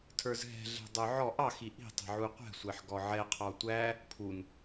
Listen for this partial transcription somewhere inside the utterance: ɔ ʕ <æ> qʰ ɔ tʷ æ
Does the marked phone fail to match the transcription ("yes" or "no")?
yes